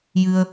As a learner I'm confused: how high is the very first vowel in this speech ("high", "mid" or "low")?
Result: high